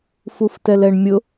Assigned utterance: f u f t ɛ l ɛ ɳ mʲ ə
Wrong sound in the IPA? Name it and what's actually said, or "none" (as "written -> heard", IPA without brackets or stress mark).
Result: ə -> ʊ